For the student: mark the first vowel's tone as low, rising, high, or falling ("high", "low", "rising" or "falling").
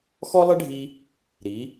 high